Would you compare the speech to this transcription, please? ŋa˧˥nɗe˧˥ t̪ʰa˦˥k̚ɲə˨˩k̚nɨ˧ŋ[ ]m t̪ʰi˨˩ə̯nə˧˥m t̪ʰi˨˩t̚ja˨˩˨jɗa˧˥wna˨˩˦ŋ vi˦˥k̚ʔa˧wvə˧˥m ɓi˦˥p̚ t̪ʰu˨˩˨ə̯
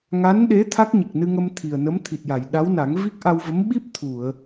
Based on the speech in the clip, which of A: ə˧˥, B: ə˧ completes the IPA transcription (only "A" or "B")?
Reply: B